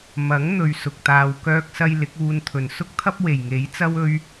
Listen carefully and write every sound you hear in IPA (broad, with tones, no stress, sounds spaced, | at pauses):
m ɐ˨˥ ŋ n̪ ɵ˨ ɥ s ʊ˨ k̚ t̪ aː˧ w k œː˥ k̚ s ɐ˥ j l ɪ˨˥ k̚ uː˧ n t̪ʰ ɵ˨˩ n s ʊ˥ k̚ t̪ʰ ɐ˥ p̚ w e˨˩ j ŋ e˨˥ j t͡s ɐ˥ w ɵ˥ ɥ